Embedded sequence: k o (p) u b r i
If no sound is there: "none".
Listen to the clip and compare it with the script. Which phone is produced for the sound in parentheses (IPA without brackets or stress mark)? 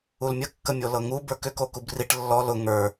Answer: k